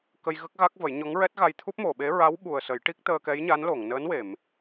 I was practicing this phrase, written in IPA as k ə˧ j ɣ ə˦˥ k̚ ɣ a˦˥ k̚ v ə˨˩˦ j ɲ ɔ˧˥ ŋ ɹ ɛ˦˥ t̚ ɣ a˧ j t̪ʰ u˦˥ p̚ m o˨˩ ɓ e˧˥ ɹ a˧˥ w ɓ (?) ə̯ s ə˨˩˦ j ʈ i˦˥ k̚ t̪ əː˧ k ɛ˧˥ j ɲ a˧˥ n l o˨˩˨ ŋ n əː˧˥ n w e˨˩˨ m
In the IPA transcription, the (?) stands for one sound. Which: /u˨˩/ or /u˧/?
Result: u˨˩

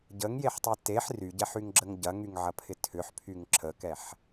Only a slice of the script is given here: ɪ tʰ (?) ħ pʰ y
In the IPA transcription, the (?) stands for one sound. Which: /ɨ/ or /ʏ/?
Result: ʏ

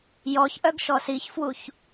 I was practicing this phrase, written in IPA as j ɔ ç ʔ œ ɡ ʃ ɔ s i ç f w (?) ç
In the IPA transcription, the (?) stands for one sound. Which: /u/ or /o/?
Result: u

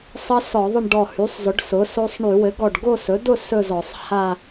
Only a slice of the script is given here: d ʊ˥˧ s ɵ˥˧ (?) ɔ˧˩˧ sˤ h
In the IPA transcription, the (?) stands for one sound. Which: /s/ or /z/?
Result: z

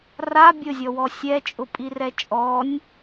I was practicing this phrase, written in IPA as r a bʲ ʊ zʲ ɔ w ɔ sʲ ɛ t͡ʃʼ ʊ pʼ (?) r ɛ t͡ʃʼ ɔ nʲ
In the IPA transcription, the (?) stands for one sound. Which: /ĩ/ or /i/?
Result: i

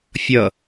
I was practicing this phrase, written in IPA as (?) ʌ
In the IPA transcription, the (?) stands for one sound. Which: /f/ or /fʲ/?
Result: fʲ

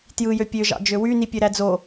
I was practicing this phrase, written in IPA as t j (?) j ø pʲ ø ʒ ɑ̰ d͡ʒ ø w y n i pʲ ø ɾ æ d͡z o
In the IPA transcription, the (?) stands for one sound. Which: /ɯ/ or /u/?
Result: ɯ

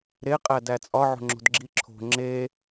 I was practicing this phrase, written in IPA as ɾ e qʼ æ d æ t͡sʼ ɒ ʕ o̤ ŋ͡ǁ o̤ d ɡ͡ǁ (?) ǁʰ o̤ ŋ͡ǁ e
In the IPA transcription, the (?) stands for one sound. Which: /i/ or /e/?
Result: i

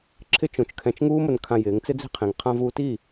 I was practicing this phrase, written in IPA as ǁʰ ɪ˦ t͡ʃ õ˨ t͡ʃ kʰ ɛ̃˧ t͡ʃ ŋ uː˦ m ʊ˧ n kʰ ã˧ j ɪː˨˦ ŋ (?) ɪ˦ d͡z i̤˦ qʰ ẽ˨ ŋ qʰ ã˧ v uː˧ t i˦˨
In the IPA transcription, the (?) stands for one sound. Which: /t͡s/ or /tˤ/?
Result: t͡s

